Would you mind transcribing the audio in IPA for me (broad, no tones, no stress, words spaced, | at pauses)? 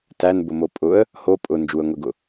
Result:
tænbʊmo pʼʊə̯ | ho pʼʊ nd͡ʒuə̯ŋʷeɡʊ